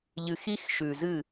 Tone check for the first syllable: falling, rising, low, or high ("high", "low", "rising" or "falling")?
low